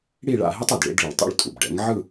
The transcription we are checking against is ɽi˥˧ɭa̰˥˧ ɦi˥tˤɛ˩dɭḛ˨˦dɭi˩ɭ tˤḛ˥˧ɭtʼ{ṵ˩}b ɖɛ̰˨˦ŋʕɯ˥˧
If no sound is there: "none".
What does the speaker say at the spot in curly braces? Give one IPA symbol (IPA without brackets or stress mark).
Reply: ṵ˩